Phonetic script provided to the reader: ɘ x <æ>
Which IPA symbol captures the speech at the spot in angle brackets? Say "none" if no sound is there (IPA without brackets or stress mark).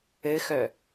œ